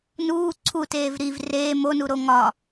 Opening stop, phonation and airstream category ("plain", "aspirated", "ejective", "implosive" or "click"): click